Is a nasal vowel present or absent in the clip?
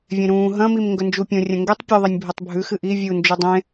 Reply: present